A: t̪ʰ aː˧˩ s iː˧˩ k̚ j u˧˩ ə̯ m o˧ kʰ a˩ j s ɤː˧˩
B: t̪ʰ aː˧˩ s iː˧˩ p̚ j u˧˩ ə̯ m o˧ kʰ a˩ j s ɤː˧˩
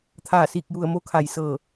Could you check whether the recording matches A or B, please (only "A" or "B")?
A